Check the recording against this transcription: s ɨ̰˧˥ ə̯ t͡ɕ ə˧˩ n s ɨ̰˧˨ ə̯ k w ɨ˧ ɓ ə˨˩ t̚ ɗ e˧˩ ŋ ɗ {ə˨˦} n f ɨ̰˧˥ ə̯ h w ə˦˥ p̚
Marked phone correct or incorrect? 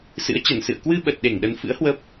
correct